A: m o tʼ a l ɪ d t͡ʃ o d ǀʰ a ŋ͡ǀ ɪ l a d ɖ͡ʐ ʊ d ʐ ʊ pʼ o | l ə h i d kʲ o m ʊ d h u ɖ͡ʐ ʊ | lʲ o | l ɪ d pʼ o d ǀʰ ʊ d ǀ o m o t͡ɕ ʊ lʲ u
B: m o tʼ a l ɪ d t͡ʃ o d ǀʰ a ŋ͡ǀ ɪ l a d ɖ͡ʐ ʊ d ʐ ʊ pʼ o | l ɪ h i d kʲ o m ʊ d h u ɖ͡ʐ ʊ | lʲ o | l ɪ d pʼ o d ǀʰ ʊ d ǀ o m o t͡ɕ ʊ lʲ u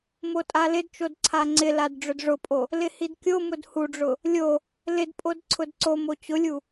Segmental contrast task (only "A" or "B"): B